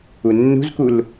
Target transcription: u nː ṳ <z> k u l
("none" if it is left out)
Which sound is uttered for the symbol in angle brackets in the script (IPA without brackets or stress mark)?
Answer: z